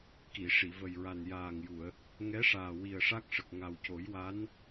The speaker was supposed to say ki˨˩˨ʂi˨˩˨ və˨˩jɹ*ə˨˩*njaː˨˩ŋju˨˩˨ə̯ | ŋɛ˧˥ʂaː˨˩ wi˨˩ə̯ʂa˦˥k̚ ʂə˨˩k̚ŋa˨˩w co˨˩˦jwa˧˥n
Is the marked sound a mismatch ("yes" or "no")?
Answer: yes